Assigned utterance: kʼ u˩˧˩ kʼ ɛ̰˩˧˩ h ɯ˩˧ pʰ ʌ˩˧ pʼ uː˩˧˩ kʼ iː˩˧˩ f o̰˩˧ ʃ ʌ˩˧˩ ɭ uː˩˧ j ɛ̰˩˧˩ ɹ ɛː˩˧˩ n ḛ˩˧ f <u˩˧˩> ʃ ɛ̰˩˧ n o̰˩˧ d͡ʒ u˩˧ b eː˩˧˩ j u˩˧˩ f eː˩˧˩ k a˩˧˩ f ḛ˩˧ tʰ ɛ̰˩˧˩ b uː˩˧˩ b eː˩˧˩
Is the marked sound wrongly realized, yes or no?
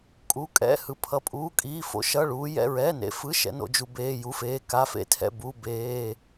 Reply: yes